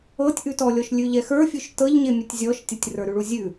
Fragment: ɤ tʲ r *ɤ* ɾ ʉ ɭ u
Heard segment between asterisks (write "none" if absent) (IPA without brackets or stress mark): ə˞